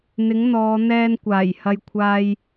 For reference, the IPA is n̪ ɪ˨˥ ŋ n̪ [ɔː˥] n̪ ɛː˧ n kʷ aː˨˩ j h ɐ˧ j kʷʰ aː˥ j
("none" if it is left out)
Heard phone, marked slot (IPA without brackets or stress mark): ɔː˨˧